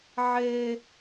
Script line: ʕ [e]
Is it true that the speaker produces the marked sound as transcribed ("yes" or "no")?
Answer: yes